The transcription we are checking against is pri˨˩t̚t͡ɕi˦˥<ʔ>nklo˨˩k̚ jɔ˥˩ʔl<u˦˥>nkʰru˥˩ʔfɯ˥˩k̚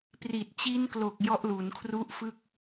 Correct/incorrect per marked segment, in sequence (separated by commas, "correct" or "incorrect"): incorrect, incorrect